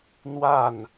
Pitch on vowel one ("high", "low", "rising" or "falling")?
falling